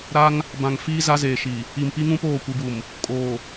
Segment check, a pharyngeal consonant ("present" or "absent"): absent